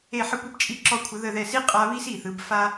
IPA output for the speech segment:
e˧˩ ħ ə˧ kʷ ə˧ b t͡ʃʼ i˧ ǁ ɔ˧ kʷʰ ə˩˧ ð ə˧˩ ð ɛ˧˩ s i˥ qʼ a˧ β i˥ s i˧˩ θ ɯ˩˧ b f a˥

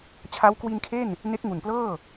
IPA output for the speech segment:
t͡ɕʰ a˦˥ w k w i˧ n kʰ e˥˩ n | n e˦˥ k̚ ŋ u˨˩ n p l ɤː˥˩

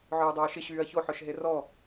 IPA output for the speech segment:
ʕ œː dˤ œː ʃ ɪ ɕ yː ɐ̯ ç o ħ œ ʃ ɦ e r ɔ

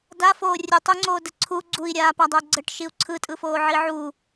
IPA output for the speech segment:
d a f oː rʲ ɯ tˤ u ŋ͡ǀ oː d ə ǀʰ u ɡ͡ǀ u i̯ ɾʲ aː p a dˤ əː ɡ͡ǀ ə ʈ ʃ i u̯ ǀʰ ɯ tʼ ɯ f oː ʕ i ʕ u

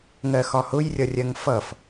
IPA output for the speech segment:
ŋ ɜ x ɒ h ʊ j rʲ ʌ rʲ ɜ ŋ f ʌ f

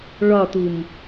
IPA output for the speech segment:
ɭ ɒ t u m

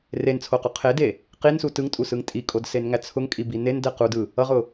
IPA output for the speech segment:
r e n t͡sʰ o q u qʰ e d e | q i n s u t ɯ ŋ tʼ u s ɯ ŋ tʼ i kʼ o d s e n ŋ æ t͡sʰ ʊ ŋ kʼ i b i n e n d ɛ q u d ɯ | ʌ ʁ ʊ

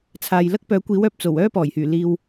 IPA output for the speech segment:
t͡sʰ aː˨ j l ɐ˥ k̚ p œː˨˥ kʷ iː˨˥ w œː˧ p̚ t͡s o˨˩ w œː˥ p ɔː˨˩ j h yː˨˩ l iː˨ w

